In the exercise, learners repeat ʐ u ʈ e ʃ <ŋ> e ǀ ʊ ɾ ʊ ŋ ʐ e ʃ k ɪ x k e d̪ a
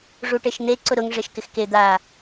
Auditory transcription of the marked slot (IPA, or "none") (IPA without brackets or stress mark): n̪